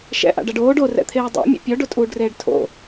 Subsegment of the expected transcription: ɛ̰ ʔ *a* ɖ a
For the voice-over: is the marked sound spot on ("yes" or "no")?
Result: no